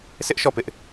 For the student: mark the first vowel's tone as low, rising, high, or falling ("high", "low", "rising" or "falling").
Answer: high